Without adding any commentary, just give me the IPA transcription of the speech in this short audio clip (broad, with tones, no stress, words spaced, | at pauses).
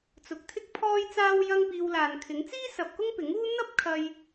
t͡sʊ˨k̚t̪ʰɪ˥k̚ pʰɔː˥jt͡saː˥w jɐ˥ŋpiː˧wlaː˨nkʰɪ˨˥ŋ t͡siː˥ sɐ˨p̚kʊ˥ŋ pɪ˨˥ŋ uː˥ n̪ɐ˥p̚ kʰɐ˧j